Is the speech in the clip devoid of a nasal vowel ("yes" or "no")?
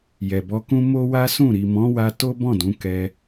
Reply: no